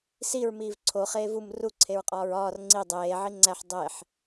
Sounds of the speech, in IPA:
s i ɹ m iː v ǀʰ o χ eː v u m r u ǀʰ e ɹ qʼ ɒː ɹ ɒː r ŋ͡ǀ i dˤ eː ʕ i ŋ͡ǀ æ ħ dˤ e ħ

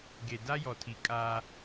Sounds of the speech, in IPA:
ɡ e˨ d a˦ j ɔ˨ tʰ i˨ kʼ a˦

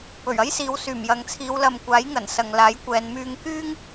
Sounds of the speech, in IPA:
p ɵ˨˩ ɥ ɐ˥ j s iː˨˧ w s yː˨˩ m j ɐ˨ ŋ t͡sʰ iː˨˧ w l ɐ˨ m kʷ aː˨˥ j ŋ ɐ˨˩ n s ɐ˨ ŋ l aː˨˥ j kʷ ɛː˨˧ n m yː˧ ŋ k yː˥ ŋ

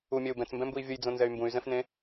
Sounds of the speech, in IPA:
u mʲ ɛ u̯ b ɛ̃ t͡s m b ɛ̃ m b u i̯ vʲ ə j d͡z õ n z ɛ y̯ m b ũ y̯ z ɛ̃ f n ẽ

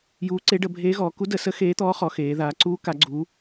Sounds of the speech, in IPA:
j uː˧˥ ǀ e˧˥ ɖ ə˩˧ bʱ eː˧˥ ɣ ɔː˩˧ k u˧˥ d ə˩˧ s ə˧˥ x eː˧˥ t̪ ɔː˧˥ χ ɔ˩˧ x eː˩˧ ð aː˩˧ ǀ uː˧˥ k a˩˧ ɡ͡ǀ uː˩˧

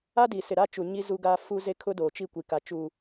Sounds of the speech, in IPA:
a˦ d i˨ s ɪ˨ ɾ a˦ t͡ʃ u˨ ɲ i˦ z u˦ ɡ aː˦ f u˦ z e˦ kʰ ʊ˦ d oː˨ t͡ʃ i˦˨ kʷ i˨ k a˨ t͡ʃ uː˨

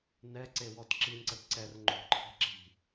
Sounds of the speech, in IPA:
n ɛ ǀ e w ɔ t ǁ i n ǀ ə t ǀ ɛ r ŋ͡ǃ o̤ ǃʰ e̤ ǁ i̤

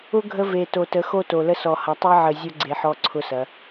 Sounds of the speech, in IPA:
ʊ˦ ɡʱ ə˦ v e˨ t o˨ t ə˨˦ x o˦ t o˨ l ə˦ s ɔ˨ h ɐ˨˦ tˤ e˦ ʕ ə˨ zʲ ʊ˦ ɡ͡ǀ e˨ ħ ɔ˦ ǀʰ ʊ˦ s ɐ˨˦

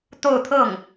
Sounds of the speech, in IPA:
t̪ o˥˧ ʊ̯ t̪ʰ ɤ˥˩ ŋ

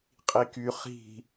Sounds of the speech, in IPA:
qʼ i k y χ i̤

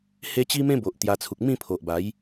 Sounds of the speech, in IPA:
h e˦ t͡ɕ i˦ m ẽ˦ b o˨ ʔ t̪ j a˧ t͡sʰ u˨ k̚ m ĩ˥˧ pʰ o˨ ʔ b a˨˦ j

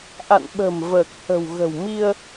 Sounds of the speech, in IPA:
ʔ a̰˧˨ n ɓ ə̤˨˩ m v əː˨˩ k̚ h ə̤˨˩ w ɣ ə̤˨˩ w m i˧ ə̯

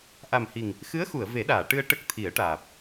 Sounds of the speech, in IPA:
ʔ a˨˩ m h i˨˩ ŋ | x ɨ˧˥ ə̯ x u˨˩˨ ə̯ v e˨˩˦ ɗ aː˨˩˨ ʈ ɨ˧ ə̯ ʈ ə˦˥ k̚ t̪ʰ i˨˩˦ ə̯ ʈ aː˨˩ p̚

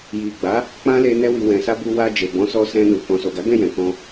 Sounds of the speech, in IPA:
j i˨ ɡ͡b a˨˦ | k͡p ã˦ l e˧ n ɛ˧ w i˨ w ɛ̃˨ s a˧ b u˧ w a˧ d͡ʒ e˨ b ɔ̃˨˦ s ɔ˧ s ɛ̃˧ n u˨ k ɔ̃˨ s o˨ ɡ a˨˦ ɡ ɛ̃˦˨ j ɛ̃˨ k ɔ̃˧

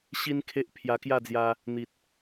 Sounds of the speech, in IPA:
ɕ i˦ n kʰ e˦ ʔ pʰ j a˧ k j a˥˧ d͡z j a˧ | n̪ i˨ t̚

